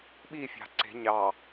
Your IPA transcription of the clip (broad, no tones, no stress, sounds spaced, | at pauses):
ɓ i fʲ ɑ̤ ǀ e̤ ɲ ɑ